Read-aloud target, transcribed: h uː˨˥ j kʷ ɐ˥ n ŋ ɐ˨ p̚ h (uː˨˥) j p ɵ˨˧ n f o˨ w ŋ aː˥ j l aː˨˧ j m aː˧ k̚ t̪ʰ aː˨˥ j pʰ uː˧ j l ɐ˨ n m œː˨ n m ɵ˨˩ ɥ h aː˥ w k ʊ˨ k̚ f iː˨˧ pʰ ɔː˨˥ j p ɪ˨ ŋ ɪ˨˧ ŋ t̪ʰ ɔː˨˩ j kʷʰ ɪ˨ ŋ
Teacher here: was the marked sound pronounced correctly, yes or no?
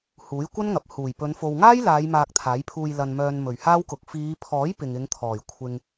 no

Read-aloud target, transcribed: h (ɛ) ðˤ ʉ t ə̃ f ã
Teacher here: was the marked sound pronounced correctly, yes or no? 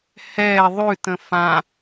yes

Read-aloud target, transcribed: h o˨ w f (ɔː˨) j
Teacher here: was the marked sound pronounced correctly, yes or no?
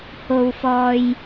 yes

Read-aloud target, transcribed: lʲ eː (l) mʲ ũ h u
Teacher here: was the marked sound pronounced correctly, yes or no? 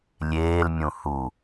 yes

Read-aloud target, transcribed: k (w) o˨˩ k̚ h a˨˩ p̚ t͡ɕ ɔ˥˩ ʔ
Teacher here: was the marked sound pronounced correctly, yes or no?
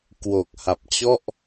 yes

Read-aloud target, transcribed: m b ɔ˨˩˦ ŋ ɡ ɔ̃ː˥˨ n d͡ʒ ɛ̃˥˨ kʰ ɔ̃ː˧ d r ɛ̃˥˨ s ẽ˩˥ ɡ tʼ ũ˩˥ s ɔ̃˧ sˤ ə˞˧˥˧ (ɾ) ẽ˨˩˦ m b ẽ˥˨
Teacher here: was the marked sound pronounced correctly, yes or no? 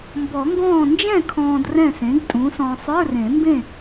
no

